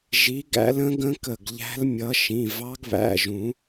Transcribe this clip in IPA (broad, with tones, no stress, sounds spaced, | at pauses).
ʒ i˨˦ ɡ æ̰˨˦ l ə̃˦˥ ɡ ə̃˦˥ k ə˧˩ ɡ ʎ æ̤˦˥ l mʲ ʌ˨˦ ʃ ĩ˩˧˩ v ɑ˦˥ ɡ β æ̰˩˧˩ ʒ ũ˨˩˦